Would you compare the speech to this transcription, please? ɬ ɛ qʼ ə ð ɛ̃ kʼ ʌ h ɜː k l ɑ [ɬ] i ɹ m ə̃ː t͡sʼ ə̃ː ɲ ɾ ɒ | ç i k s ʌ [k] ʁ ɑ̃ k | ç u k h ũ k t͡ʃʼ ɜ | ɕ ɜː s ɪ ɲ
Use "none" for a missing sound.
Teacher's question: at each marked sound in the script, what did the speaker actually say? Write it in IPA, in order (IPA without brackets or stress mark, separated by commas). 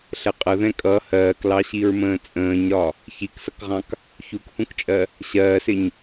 ɕ, k